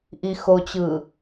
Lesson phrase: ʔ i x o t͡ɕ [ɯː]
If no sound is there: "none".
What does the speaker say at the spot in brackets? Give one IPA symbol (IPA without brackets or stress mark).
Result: ɯː